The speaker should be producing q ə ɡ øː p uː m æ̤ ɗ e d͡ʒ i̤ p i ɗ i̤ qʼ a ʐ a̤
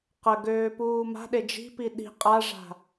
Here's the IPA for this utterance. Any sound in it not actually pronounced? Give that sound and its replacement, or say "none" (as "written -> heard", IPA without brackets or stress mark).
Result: æ̤ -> a̤